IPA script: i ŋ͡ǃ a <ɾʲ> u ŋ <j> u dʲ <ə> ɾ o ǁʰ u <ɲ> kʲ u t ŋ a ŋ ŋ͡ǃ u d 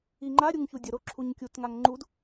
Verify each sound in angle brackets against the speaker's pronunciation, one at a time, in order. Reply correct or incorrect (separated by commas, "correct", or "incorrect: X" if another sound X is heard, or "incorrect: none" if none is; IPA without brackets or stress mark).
correct, incorrect: ç, correct, correct